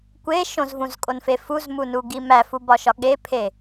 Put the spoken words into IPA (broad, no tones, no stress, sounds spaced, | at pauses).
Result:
kʷ e ʃ õ z v ũ z kʼ o n f e f u z m u n u ɡ i m æ f u b ɒ ʃ ɒ ɠ e pʰ e